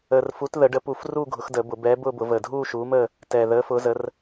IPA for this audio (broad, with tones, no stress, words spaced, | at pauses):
əː˨˩rfu˨˥t ðə˨˩˦ɖə˨˥pu˨˩˦fruː˥˧ ɡʱʊ˨˥xdəː˨˩˦bʊ˨˩˦ bɛː˨˥ bʊː˥˧bʊ˨˩˦vəː˨˩ dʱuː˥˧ʃuː˨˥məː˥˧ | tɛː˨˩ ðəː˨˥fʊː˨˥zə˨˥r